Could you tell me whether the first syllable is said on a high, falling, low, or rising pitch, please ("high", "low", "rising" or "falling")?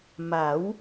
rising